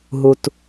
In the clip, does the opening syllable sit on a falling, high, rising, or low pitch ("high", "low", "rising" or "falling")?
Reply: high